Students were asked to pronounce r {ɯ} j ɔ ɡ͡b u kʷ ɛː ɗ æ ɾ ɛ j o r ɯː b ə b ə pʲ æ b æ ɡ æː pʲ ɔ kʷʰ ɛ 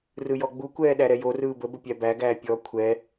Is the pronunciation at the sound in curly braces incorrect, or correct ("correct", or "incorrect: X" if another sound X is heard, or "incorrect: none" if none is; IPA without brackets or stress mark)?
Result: correct